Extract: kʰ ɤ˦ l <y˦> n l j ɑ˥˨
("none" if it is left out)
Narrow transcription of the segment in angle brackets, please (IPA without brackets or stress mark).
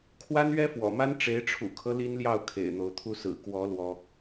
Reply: i˦